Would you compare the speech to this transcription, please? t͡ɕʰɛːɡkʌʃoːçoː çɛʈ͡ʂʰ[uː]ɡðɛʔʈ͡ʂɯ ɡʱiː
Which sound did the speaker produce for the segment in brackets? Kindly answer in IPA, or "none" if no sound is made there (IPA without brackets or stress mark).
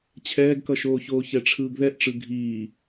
ɯː